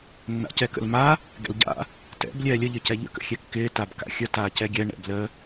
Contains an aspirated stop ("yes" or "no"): no